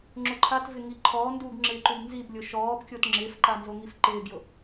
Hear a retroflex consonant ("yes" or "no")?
no